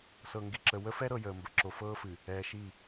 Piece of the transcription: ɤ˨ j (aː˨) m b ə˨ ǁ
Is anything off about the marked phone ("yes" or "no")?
yes